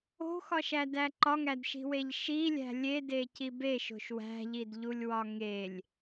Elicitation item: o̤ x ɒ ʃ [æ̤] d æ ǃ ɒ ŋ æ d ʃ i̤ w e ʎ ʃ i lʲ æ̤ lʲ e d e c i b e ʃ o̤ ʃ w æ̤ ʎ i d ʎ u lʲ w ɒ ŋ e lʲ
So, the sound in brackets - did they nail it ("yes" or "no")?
no